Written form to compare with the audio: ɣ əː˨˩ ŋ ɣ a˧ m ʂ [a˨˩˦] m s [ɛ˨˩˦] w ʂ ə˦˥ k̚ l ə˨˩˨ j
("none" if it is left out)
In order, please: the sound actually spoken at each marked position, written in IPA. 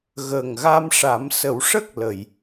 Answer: a˨˩˦, ə˨˩˦

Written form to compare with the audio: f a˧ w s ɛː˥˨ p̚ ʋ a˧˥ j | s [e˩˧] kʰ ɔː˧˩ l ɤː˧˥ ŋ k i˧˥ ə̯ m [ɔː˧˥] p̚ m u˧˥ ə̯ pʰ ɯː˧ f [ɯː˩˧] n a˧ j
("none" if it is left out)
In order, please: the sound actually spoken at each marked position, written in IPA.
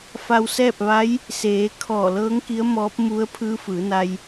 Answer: eː˩˧, ɔː˧˥, ɯː˩˧

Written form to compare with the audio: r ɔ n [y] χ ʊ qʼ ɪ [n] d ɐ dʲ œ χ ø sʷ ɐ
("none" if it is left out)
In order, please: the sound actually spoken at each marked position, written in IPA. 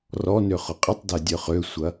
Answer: ø, tˤ

